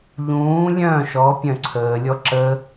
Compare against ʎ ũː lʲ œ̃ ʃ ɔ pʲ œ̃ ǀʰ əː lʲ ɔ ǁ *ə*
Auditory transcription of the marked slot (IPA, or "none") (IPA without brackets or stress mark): ə